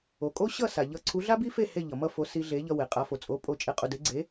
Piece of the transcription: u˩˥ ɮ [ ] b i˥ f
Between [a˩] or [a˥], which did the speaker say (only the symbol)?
a˥